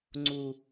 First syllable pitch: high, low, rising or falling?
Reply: low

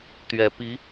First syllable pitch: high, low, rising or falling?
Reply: low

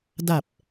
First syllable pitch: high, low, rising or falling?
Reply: low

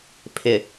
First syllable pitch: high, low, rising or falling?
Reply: low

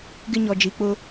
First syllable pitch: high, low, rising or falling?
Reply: high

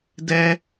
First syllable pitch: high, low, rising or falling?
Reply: high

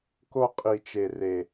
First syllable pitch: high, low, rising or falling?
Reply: high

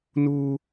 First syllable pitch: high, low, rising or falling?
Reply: high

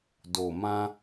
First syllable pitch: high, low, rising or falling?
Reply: low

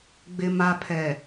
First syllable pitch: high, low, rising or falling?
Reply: low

